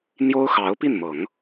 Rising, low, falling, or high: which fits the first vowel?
high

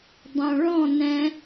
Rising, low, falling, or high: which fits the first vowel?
low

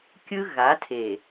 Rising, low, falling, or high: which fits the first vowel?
high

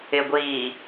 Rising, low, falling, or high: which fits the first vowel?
low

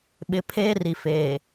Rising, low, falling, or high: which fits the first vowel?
low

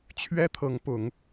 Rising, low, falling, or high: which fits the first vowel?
high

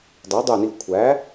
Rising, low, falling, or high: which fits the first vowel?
rising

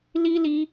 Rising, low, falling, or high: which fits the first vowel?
high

